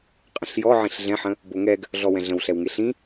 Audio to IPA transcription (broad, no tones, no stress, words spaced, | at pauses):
qʼə̃ɬjɔʕĩɬ ɮɛ̃ħə̃ | boŋɛɡ | ɮɔwɛ̃ɮə̃w ɬɛwŋeɬĩ